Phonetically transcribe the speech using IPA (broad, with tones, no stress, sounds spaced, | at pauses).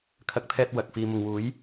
kʰ ɐ˨˥ k̚ t̪ʰ ɛː˧ t̚ w ɐ˨ k̚ f iː˧ m ʊ˨ ŋ w uː˨˥ j